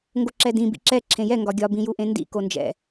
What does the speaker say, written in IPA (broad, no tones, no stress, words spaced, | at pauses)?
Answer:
ŋɡoǁɛdĩ bḭǁɛ ǁʰẽjɛ ŋɡɒɡʲɒ bĩjuʔẽndḭ kond͡ʒɛ̰